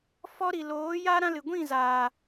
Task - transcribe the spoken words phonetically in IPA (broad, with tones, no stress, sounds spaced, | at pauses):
f ɔ˧ ɾ i˨ l oː˨˦ j a˦ ɾ ã˧ l ɨ˨ ɡʷ ĩ˦˨ z aː˨